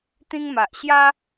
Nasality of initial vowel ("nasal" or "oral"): nasal